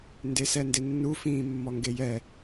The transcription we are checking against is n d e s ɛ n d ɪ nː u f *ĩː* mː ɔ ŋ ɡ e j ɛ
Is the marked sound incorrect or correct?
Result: correct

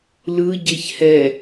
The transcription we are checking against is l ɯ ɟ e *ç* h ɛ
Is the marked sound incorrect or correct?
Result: correct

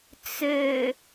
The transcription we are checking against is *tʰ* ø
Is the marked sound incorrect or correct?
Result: incorrect: t͡s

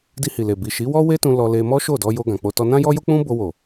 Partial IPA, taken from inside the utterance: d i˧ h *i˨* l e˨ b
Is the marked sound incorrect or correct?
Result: correct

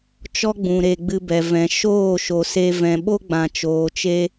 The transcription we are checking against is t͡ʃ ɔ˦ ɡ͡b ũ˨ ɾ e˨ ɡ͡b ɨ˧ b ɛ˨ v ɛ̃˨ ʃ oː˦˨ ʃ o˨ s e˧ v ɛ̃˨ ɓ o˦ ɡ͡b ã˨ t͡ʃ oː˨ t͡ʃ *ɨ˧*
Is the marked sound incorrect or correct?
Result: incorrect: e˧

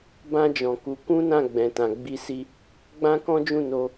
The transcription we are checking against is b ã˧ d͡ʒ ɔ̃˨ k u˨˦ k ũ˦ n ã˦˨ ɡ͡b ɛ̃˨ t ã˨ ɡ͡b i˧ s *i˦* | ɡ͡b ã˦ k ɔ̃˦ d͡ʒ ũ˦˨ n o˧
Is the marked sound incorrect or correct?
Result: incorrect: i˧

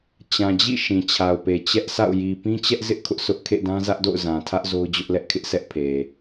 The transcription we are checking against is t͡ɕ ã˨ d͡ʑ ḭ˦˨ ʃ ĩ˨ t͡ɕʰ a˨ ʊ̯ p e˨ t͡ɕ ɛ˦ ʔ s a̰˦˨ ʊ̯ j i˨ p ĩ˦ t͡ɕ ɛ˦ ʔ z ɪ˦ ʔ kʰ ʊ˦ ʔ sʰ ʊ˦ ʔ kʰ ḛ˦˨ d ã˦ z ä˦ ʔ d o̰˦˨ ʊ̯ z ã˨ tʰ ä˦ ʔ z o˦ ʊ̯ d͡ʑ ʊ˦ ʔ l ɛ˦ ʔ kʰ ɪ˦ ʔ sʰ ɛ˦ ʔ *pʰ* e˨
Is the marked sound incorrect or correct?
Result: correct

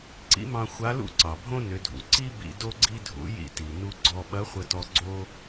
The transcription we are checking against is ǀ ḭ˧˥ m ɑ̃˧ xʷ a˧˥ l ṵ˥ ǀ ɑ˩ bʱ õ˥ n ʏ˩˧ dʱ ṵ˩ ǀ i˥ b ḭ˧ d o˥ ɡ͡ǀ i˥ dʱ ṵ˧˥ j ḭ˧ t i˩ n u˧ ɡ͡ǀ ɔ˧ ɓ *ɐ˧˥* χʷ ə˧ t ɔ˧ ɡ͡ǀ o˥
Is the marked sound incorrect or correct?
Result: correct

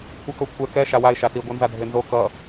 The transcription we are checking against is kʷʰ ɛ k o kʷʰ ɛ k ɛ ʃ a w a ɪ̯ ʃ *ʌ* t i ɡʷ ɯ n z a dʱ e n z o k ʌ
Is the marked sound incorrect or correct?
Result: incorrect: a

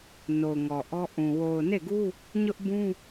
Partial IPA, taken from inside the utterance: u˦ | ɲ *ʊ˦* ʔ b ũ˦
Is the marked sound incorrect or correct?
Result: correct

